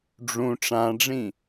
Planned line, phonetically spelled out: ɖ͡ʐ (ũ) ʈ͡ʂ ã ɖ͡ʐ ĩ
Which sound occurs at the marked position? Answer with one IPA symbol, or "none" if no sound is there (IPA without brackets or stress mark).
ũ